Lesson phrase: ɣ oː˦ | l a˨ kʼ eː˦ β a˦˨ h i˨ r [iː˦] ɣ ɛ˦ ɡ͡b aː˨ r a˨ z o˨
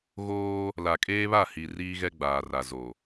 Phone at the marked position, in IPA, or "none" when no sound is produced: iː˦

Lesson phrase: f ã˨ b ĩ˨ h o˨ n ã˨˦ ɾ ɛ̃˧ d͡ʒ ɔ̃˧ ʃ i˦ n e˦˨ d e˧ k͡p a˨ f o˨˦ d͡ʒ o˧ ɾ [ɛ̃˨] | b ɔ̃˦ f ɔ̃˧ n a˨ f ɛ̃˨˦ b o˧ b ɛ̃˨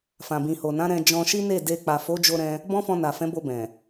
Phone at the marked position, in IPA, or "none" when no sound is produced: ɛ̃˧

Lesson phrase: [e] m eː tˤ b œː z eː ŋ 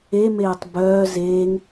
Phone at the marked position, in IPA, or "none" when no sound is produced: e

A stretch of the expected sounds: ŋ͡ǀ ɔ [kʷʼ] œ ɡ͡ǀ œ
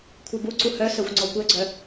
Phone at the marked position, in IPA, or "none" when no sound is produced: kʷ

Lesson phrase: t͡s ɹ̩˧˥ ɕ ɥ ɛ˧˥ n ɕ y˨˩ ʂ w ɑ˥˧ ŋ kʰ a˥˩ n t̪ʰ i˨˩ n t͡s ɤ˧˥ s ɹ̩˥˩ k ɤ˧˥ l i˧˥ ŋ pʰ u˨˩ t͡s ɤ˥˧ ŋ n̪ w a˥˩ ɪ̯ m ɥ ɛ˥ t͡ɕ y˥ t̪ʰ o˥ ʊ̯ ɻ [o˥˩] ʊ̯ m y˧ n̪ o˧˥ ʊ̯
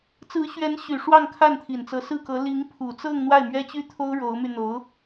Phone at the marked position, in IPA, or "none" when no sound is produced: o˧˥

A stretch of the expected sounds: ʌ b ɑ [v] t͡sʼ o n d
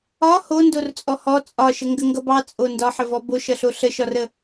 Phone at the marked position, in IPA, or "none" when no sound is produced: none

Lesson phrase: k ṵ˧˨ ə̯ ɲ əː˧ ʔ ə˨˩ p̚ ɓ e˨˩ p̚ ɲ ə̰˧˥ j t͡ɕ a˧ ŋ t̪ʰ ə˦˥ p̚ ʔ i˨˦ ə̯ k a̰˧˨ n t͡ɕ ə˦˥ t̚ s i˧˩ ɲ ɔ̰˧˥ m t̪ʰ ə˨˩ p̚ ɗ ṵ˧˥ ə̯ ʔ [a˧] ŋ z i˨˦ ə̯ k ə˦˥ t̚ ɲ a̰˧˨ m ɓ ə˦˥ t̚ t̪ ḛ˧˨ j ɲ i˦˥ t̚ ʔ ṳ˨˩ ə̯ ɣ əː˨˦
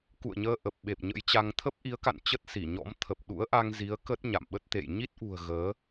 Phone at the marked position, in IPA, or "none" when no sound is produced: a˧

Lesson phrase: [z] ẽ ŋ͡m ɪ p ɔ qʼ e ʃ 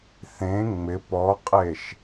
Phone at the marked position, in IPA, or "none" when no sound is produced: θ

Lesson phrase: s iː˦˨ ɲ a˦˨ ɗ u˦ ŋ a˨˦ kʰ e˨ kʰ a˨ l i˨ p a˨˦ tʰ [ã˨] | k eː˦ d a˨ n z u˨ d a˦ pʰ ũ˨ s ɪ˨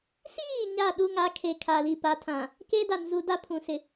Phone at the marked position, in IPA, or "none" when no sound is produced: ã˨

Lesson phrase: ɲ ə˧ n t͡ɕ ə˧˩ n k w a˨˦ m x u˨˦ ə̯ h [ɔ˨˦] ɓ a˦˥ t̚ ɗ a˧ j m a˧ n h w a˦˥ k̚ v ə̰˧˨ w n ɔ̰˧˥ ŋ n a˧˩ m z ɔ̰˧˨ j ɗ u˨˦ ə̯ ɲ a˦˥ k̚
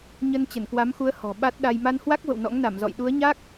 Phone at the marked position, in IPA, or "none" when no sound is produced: ɔ̤˨˩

